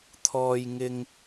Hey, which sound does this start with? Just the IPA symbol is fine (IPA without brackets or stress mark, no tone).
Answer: t̪ʰ